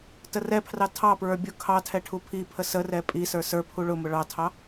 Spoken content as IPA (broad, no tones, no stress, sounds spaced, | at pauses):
t ə r ɛ pʰ r ɑ tʰ ɑ p ɹ ə˞ bʲ ʊ kʰ ɑ tʰ ɛ ʈʰ u pʰ i pʰ ə s ə r ɛ pʼ i s ə˞ s ə˞ pʰ u ɭ ʊ m ʊ ɭ ɑ tʰ ɑ